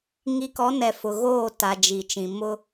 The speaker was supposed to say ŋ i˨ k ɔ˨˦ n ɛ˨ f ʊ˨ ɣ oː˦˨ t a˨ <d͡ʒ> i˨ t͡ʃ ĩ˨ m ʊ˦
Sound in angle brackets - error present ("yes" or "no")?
no